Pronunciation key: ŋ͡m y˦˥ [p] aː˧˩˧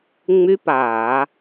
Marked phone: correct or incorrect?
correct